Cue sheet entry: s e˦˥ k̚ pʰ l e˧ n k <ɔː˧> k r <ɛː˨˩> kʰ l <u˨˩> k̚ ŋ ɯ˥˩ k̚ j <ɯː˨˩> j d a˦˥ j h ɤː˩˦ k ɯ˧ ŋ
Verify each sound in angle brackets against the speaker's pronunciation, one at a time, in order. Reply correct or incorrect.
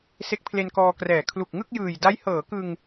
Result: correct, correct, correct, correct

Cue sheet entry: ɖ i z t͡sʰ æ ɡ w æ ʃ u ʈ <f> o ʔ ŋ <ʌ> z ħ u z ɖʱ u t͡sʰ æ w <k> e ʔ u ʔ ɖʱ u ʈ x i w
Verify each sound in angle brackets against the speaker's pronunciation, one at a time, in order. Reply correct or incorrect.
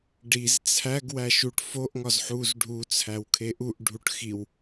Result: correct, incorrect: ɒ, incorrect: kʰ

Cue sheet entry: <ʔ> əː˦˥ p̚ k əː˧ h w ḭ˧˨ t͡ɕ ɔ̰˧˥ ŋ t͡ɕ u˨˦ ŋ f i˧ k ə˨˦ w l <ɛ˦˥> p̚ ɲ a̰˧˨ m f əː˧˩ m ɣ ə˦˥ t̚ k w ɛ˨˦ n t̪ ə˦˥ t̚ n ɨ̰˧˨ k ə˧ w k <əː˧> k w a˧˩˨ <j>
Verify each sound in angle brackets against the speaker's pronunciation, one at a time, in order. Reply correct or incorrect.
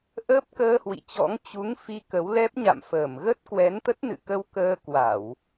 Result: correct, correct, correct, incorrect: w

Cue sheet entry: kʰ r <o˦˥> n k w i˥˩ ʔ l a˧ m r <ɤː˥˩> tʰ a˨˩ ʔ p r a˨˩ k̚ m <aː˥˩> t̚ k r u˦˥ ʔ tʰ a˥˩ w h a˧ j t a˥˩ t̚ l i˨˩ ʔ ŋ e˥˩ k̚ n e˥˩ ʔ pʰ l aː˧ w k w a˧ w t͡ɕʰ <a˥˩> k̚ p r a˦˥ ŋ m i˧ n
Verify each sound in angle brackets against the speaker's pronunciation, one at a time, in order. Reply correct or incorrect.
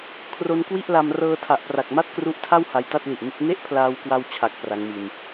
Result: correct, incorrect: ɤː˧, incorrect: a˥˩, incorrect: a˨˩

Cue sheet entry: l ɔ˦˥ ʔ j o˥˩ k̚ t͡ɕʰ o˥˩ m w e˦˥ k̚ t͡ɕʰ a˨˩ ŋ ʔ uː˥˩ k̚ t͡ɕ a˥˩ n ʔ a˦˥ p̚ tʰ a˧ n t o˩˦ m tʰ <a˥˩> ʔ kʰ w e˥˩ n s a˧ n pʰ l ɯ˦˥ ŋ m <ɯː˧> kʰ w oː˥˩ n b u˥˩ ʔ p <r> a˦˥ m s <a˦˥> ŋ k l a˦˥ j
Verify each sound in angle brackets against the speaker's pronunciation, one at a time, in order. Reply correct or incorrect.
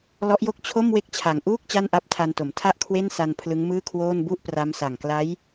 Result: correct, incorrect: ɯː˥˩, correct, incorrect: a˨˩

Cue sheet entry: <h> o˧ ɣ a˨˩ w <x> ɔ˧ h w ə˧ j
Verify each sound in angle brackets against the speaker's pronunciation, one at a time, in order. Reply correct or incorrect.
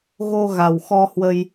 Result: incorrect: ɣ, correct

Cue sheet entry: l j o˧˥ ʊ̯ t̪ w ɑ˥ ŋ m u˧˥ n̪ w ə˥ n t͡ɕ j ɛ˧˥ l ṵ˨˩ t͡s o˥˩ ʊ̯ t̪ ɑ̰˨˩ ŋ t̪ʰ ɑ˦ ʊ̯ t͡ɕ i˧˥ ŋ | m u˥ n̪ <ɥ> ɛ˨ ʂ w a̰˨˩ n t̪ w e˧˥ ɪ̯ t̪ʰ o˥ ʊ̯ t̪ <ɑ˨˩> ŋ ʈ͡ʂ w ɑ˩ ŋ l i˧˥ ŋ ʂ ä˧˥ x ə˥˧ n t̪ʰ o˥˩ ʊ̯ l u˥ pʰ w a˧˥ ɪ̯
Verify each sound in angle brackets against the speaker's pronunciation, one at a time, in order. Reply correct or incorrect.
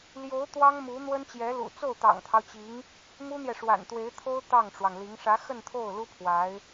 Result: incorrect: j, incorrect: ɑ˥˩

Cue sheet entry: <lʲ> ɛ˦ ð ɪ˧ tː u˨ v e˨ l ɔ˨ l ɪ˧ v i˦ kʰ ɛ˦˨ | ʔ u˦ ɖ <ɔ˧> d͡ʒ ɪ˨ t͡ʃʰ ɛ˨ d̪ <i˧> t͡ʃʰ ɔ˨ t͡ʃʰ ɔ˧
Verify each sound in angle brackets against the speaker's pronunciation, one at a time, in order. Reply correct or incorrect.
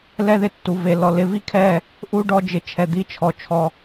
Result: incorrect: l, correct, incorrect: i˦

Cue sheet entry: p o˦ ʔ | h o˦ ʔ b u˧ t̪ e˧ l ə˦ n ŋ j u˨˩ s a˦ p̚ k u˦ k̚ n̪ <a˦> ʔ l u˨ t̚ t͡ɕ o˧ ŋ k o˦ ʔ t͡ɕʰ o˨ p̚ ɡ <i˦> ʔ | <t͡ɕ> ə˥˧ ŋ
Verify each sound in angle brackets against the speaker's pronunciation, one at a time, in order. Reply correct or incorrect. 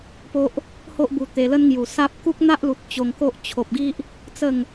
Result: correct, correct, incorrect: t͡s

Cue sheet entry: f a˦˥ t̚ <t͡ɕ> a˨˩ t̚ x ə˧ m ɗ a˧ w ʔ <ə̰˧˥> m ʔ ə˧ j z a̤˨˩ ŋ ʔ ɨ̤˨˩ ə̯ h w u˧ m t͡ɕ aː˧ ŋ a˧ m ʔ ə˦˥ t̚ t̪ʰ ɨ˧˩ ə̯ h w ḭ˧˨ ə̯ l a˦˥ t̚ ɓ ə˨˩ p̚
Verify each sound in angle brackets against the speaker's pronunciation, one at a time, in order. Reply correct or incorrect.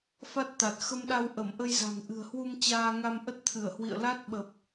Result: incorrect: t̪, incorrect: ə˧˩

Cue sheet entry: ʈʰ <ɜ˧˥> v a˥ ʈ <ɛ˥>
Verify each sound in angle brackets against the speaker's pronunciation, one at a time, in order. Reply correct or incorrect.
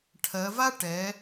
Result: incorrect: ɜ˩˧, incorrect: ɛ˩˧

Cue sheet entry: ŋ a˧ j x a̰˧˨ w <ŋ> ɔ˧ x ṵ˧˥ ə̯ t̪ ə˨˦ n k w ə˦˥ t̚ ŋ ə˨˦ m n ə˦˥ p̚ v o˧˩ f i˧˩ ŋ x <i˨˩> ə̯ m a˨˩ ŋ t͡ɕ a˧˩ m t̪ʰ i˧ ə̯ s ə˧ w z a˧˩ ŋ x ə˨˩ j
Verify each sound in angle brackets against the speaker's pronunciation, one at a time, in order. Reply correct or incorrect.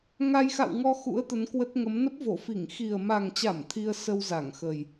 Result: correct, correct

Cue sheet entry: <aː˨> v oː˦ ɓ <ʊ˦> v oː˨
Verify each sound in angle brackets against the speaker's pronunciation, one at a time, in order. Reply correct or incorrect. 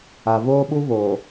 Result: incorrect: a˨, incorrect: u˦

